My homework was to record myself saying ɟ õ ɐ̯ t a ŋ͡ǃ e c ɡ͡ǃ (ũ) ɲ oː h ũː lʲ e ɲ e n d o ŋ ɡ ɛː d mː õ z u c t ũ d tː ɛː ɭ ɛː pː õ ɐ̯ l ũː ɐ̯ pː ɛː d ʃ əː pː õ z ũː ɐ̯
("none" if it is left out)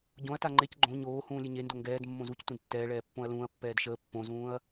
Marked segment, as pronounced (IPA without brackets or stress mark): õ